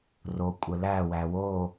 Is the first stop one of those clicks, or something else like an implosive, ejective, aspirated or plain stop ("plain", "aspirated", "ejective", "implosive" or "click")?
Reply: ejective